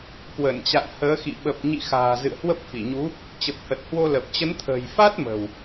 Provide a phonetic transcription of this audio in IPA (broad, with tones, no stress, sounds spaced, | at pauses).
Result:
k w ə˧˩ n t͡ɕ a̰˧˨ n h əː˨˦ x ḭ˧˨ ɓ ə˨˩ p̚ ɲ ḭ˧˨ x a̤ː˨˩ z ɨ̰˧˨ ə̯ h w ə˦˥ p̚ f i˧˩ ɲ u˨˦ | t͡ɕ ə˨˩ p̚ h ə˨˩ t̚ h w o˧ l ə˨˩ p̚ t͡ɕ ə˨˦ n t̪ʰ ə̤ː˨˩ j f a˦˥ t̚ m ə̤˨˩ w